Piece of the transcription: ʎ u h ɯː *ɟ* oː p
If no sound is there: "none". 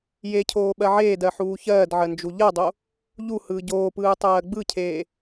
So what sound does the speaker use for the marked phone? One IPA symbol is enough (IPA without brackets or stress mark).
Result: ɟ